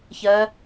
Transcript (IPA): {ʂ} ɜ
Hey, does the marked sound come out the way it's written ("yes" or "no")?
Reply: no